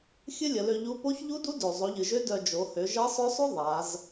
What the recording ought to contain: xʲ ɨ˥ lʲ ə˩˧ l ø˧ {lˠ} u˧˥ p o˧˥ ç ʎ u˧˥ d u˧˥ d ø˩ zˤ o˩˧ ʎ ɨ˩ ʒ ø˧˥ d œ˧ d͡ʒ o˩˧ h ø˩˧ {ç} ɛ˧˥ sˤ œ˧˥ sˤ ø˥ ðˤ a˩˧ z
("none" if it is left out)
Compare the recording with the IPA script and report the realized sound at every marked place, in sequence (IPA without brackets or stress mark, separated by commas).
ʎ, ʒ